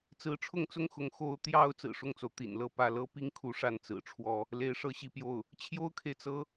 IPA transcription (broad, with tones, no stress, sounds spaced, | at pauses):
t͡s ɹ̩˧˥ ʈ͡ʂʰ ʊ˥˧ ŋ t͡s ʊ˥˩ ŋ x ʊ˧˥ ŋ x o˧˥ ʊ̯ t̪ j ɑ˧˥ ʊ̯ t͡s ɹ̩˨˩ ʂ ʊ˥˩ ŋ t͡s o˩ ʊ̯ t̪ ḭ˨˩ n l ɤ˥˧ p ä˥˩ l ɤ˥ p i˥˧ ŋ kʰ u˥˧ ʂ a˥˩ n t͡s ɹ̩˨˩ ʈ͡ʂʰ w ɔ˥ | l e˧˥ ɪ̯ ʂ ɤ˥ ɕ i˥˧ p j o˥˩ ʊ̯ | t͡ɕʰ j o˥ ʊ̯ kʰ e˨ ɪ̯ t͡s ɤ˧˥